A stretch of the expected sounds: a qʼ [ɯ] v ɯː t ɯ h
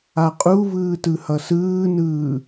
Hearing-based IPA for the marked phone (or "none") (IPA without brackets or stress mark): u